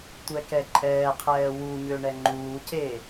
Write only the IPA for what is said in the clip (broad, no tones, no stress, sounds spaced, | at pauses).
tʷ ɛ k ɛ ǃʼ ɛː qʰ ɛː w u ɲ ø ɳ ɛ ŋ͡ǃ uː c eː